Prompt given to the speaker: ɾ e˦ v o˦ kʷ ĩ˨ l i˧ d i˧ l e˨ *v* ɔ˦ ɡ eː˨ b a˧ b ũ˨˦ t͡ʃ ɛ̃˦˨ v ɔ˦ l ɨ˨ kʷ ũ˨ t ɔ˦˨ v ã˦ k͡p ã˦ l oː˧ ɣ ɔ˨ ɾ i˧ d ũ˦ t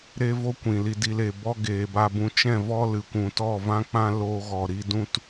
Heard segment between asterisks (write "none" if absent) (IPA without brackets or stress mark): b